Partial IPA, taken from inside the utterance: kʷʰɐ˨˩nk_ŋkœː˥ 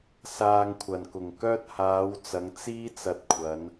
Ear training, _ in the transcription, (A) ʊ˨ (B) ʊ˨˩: B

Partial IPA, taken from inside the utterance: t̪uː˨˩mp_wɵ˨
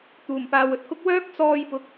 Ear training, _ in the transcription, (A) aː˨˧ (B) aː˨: B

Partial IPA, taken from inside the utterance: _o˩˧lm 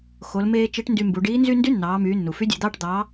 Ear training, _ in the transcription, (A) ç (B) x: B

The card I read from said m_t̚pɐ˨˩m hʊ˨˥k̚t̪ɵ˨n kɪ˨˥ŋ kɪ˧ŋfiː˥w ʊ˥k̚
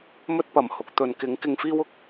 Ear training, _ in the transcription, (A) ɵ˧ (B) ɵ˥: B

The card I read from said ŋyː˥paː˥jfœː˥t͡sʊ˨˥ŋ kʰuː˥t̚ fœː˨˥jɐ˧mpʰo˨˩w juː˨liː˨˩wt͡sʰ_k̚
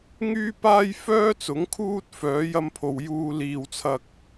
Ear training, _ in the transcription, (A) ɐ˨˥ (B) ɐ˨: B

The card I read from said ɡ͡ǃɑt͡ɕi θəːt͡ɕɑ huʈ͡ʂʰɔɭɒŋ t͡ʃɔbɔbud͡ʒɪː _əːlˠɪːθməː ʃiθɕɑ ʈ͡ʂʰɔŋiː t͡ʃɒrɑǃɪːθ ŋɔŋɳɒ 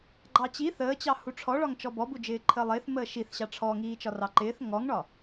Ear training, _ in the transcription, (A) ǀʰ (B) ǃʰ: B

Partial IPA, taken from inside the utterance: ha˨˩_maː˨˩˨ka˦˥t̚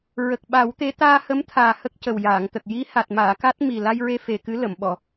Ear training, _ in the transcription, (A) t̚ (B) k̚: A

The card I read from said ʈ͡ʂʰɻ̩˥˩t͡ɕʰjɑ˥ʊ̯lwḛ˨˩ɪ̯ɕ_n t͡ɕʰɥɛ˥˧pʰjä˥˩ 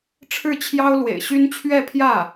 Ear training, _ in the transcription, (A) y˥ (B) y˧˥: A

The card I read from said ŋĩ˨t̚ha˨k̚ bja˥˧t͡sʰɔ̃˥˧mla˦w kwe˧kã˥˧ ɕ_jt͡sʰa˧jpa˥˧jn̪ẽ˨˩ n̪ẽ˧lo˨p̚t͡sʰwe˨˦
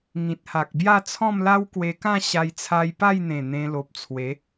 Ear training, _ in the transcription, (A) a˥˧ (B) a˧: B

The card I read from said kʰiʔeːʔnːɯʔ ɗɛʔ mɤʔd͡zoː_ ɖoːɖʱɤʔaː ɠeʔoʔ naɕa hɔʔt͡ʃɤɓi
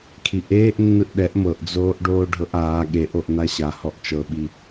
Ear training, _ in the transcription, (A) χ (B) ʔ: B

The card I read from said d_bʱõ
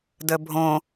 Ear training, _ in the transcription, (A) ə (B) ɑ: A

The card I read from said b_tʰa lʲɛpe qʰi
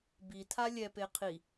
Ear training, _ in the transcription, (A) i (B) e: A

